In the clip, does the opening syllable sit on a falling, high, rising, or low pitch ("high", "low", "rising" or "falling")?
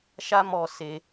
high